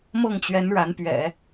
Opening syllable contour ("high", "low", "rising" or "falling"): falling